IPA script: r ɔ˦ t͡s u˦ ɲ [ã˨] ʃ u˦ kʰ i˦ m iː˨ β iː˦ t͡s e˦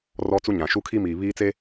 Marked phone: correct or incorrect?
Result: correct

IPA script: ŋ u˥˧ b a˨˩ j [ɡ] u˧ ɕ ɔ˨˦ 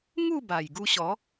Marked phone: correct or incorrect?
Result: correct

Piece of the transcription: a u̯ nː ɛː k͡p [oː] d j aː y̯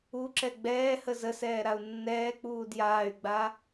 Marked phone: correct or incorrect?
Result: incorrect: uː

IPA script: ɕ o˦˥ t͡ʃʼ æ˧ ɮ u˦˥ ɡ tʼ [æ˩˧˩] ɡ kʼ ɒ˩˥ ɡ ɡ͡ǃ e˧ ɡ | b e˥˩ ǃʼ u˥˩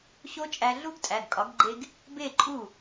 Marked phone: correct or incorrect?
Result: correct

